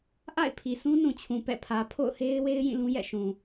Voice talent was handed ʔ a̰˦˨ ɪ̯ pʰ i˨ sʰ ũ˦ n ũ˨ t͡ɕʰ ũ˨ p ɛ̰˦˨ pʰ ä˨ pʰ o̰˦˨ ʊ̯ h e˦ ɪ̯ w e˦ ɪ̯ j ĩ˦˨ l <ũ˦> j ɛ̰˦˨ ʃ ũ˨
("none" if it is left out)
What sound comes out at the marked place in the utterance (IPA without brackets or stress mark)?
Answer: ũ˦